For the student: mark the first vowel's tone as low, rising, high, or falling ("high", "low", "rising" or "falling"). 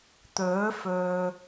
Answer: rising